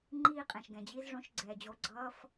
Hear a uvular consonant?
yes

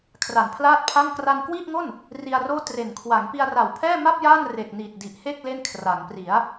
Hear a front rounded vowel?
no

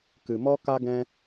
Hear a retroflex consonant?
no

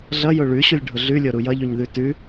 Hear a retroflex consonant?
yes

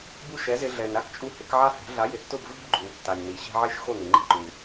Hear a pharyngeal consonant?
yes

